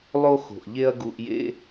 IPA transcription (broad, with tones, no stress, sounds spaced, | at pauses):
lˠ o˥ x o̤˩ ʔ ʎ e˥ ɐ̯ ɡ u˧ ʔ j ḛ˥